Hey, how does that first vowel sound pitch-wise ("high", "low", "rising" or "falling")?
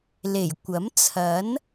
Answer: low